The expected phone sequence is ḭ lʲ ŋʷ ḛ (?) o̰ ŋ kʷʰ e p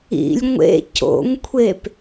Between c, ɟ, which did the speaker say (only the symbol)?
c